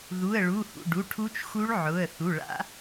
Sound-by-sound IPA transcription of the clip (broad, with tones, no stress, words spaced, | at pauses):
ðu˩˧˩ə̯ɭu˩˧˩hṵ˩˧˩ ɖu˩˧˩ʈʰu˦˥t͡ʃxu˦˥ɭ ʕʊ˩˧˩ə̯ θu˩˧˩ɭa̰˦˥